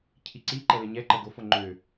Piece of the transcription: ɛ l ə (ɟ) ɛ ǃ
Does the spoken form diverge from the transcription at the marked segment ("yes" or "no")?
yes